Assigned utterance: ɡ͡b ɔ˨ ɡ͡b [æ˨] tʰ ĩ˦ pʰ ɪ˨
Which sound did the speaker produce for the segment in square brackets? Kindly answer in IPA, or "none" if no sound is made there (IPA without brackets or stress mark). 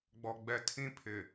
ɛ˨